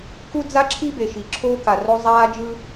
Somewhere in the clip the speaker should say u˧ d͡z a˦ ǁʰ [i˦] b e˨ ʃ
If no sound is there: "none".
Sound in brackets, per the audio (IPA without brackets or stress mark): i˦